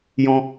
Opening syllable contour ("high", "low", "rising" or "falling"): high